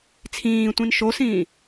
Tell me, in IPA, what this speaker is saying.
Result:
t͡sʰ ĩː tʷ ĩ n ʃ o s ĩː

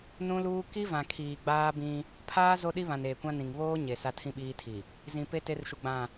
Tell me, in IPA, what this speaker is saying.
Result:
n ũ˦ l uː˦ k i˦ v ã˨ kʰ iː˨ ɡ͡b aː˦ b ĩ˦ | pʰ aː˦ z o˦ ɗ i˦ β ã˨ n eː˨ kʷ ã˦ n ĩ˨ ŋ β oː˦ ɲ e˨ s a˦ tʰ ĩ˦ ɓ iː˦ tʰ i˨ | z ĩ˨ p e˦ t e˦ r ʃ u˨ ɡ͡b ã˦˨

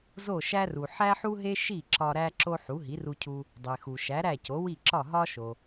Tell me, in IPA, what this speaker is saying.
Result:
z o˥˩ ʃ æ˥ r u˩ ħ æ˥ ħ u˥ ɦ e˥ ʃ i˥˩ ǁ ɒ˧ ɾ æ˥ ǁ o˥ ħ u˩˥ ɦ i˩˥ r u˧ cʰ u˧ | dˤ e˩ x u˩ ʃ æ˩˥ ɾ æ˥˩ c o˩˥ w i˥˩ ǁ ɒ˥˩ ɦ ɒ˥ ʃ o˩

